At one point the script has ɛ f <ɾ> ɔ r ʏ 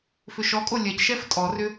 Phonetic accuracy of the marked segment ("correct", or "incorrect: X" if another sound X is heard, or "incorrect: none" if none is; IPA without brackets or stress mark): incorrect: tʼ